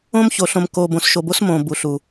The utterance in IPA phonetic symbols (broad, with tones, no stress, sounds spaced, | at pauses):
õ˦ m ç o˨ ɬ õ˨ m k o˨ b õ˨ s ʃ o˨ b o˦ s m õ˨ b u˨ ɬ u˨